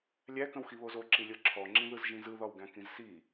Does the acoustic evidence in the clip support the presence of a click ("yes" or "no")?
yes